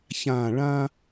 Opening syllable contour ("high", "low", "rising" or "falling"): low